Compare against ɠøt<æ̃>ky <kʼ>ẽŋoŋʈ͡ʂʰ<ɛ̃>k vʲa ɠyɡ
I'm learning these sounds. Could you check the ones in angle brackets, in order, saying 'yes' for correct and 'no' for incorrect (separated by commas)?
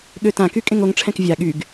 no, yes, yes